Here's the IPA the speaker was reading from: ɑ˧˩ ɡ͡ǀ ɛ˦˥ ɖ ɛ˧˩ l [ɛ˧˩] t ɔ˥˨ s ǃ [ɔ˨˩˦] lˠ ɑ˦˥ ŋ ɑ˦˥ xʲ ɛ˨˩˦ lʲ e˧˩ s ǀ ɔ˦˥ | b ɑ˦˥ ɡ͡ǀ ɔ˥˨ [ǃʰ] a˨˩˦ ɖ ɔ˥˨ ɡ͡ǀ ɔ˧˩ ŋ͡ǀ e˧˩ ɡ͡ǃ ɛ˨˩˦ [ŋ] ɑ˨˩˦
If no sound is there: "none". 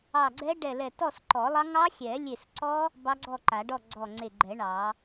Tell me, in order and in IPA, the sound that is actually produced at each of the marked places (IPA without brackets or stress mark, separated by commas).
ɛ˧˩, ɔ˨˩˦, ǃ, ɳ